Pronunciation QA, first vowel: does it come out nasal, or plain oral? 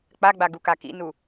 oral